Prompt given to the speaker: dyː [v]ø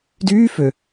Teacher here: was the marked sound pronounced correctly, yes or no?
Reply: no